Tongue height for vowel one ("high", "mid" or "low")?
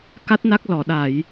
low